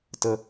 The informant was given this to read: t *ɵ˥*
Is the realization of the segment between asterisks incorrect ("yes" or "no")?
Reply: yes